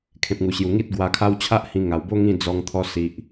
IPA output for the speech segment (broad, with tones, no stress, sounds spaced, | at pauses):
kʰ ẽ˨ p̚ ŋ u˨˩ ɕ j u˨˩ ŋ i˦ t̚ ɡ w a˧ kʰ a˦ w t͡ɕʰ a˦ ʔ h ĩ˧ ŋ a˨˩ w b o˦ ŋ ĩ˥˧ d͡z ɔ˧ ŋ t̪ʰ ɔ˧ s i˨ ʔ